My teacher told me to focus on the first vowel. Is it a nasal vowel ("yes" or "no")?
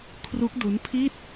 no